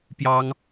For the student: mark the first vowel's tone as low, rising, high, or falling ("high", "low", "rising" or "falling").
high